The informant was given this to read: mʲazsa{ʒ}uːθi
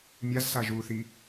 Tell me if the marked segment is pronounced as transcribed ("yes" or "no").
yes